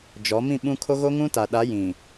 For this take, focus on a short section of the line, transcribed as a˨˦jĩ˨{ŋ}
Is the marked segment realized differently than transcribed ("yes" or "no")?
yes